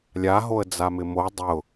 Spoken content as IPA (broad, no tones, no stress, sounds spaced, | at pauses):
lʲ a ɦ o ə̯ d͡z a m ɪ m o dˤ ʊ